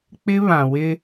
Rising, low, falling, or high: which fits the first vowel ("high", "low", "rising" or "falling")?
high